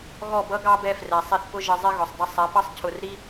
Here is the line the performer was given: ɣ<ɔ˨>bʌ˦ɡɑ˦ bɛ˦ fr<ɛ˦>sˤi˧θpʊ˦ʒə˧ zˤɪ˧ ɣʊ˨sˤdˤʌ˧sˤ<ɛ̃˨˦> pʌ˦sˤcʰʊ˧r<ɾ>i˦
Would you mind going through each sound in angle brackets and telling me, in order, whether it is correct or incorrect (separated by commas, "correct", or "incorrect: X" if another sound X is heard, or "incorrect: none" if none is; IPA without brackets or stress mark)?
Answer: incorrect: ɔ˦˨, incorrect: ɛ˨, incorrect: ɛ˨˦, correct